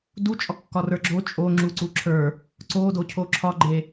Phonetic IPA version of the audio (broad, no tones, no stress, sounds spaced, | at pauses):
d u t͡ʃʼ ɒ kː ɒ r ə˞ ɡ͡ǁ o t͡ʃʼ o ŋ͡ǁ u ǀ u ǁʰ ə˞ | ǀ o d o cʰ o ǁʰ ɒ ɡ͡ǃ e